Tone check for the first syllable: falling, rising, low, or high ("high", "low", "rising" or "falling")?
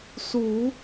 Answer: rising